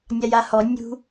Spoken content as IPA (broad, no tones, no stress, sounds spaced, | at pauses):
nʲ a j a h ɔ nʲ ṳ